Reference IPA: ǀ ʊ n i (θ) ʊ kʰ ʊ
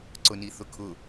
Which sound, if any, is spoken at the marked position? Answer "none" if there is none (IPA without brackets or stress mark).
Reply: θ